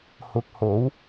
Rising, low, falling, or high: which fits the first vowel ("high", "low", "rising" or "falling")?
low